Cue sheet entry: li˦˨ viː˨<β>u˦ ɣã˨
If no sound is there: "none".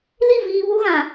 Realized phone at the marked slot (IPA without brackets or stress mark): β